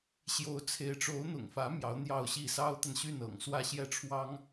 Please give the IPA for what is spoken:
ɕ j o˧˥ ʊ̯ t͡sʰ e˧˥ ɪ̯ ʈ͡ʂ o˧˥ ʊ̯ n̪ ʊ̰˨˩ ŋ f ä˧˥ m j ɑ˧˥ ʊ̯ n̪ j ɑ˥˧ ʊ̯ ɕ i˥˩ s ɑ˥ ʊ̯ t̪ a˨ n ɕ y˥˩ n ɤ̰˨˩ ŋ s w ä˥˧ ɕ j ɛ˥˩ ʈ͡ʂʰ w ɑ˥ ŋ

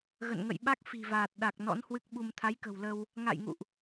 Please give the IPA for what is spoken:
ɣ ə̰˧˨ n ŋ ə̰˧˨ j ɓ a˦˥ k̚ f i̤˨˩ v aː˨˩ t̚ ɗ a˨˩ k̚ n ɔ̰˧˥ n h w ɨ˦˥ k̚ ɓ u˧ m t̪ʰ a˨˦ j k ə̤˨˩ w l ə˧ w | ŋ a̰˧˨ j ŋ ṵ˧˨ ʔ

